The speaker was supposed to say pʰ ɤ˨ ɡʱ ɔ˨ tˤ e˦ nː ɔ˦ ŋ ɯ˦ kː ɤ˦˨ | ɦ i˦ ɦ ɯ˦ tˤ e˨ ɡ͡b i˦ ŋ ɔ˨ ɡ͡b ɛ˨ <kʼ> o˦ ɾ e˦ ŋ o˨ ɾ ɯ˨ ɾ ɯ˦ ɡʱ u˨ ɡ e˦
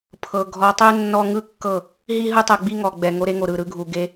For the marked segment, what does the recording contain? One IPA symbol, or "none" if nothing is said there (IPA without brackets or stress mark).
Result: ŋ